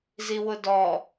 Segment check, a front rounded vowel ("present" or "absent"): absent